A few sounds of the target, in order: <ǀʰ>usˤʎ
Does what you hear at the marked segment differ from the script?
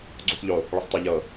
yes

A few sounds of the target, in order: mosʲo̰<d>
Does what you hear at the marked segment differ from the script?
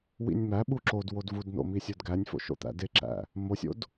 no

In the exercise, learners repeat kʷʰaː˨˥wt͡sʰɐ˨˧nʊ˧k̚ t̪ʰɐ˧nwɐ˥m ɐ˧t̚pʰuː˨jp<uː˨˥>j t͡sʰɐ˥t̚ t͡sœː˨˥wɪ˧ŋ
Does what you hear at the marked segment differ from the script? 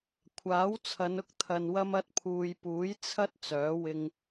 no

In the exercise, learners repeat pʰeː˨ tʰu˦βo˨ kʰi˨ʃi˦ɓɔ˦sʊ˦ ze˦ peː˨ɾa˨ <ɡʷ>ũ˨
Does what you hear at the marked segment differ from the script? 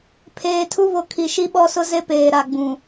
yes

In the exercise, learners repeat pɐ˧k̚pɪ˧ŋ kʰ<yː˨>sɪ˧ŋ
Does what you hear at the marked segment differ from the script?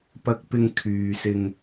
no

